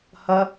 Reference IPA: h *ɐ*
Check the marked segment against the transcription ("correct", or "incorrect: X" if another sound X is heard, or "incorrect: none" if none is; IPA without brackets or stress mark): correct